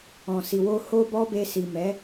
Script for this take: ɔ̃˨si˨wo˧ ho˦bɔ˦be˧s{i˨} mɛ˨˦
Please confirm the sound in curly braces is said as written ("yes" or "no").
yes